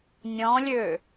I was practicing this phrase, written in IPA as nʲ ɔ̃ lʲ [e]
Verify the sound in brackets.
incorrect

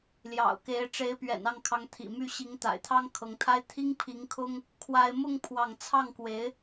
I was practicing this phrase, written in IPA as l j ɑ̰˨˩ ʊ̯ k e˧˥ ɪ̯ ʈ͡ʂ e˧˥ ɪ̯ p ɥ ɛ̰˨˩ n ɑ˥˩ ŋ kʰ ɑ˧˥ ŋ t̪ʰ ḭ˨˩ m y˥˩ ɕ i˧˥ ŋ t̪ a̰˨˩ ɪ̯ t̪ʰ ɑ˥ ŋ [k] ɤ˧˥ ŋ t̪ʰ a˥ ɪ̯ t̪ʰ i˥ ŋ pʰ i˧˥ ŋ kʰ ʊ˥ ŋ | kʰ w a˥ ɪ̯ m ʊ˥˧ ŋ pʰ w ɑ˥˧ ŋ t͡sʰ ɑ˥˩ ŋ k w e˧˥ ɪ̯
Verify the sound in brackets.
incorrect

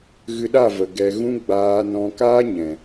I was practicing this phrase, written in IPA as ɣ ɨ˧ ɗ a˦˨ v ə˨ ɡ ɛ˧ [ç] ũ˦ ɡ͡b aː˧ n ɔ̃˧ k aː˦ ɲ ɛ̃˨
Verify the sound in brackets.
incorrect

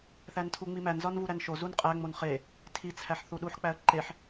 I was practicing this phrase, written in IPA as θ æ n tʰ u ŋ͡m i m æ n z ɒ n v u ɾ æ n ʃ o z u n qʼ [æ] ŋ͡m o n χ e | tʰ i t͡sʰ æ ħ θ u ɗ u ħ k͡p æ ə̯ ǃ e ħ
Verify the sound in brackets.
correct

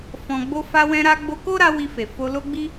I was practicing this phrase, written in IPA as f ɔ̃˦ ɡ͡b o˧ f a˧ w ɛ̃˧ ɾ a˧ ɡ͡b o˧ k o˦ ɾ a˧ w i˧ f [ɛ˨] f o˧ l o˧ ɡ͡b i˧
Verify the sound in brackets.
incorrect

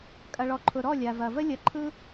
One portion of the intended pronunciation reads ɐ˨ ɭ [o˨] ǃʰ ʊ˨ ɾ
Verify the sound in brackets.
incorrect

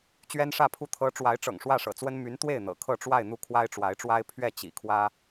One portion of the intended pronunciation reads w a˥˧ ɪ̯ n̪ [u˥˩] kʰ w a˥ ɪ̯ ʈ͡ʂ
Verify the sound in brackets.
correct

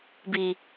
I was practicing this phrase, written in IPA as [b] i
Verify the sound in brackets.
correct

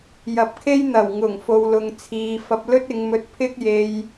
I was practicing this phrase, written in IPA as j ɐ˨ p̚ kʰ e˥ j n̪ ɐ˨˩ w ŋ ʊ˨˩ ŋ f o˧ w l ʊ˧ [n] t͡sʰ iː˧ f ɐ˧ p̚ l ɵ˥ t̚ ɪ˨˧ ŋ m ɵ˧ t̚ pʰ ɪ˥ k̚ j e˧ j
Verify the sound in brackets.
incorrect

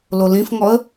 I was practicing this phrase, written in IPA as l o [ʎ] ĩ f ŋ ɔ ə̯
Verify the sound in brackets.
incorrect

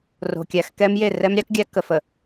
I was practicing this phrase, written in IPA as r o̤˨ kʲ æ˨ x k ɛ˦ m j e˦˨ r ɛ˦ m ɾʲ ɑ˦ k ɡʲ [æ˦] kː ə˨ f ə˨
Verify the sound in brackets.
correct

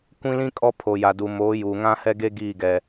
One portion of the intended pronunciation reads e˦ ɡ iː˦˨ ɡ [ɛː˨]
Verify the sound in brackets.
incorrect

